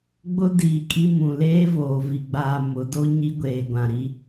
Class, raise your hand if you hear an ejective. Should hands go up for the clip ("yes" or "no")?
yes